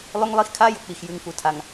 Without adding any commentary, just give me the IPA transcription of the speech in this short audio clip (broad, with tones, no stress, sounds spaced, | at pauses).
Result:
lˠ ɵ˦ ŋ lˠ i˦ x kʰ a˦ j ɵ˨ k͡p i˨ x j ʉ˨ ŋ f u˨ tʰ a˨ ŋ